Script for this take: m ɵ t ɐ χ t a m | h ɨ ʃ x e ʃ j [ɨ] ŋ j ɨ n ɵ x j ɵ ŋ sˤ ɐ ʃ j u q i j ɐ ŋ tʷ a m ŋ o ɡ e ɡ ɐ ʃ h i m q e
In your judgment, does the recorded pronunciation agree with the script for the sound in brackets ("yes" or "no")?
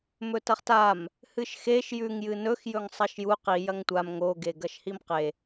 no